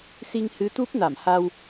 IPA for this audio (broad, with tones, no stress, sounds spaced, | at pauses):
s i˧ ŋ h ɨ˨˦ t̪ u˦˥ p̚ n a˧˩ m h a˧ w